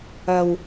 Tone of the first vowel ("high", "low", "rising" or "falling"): low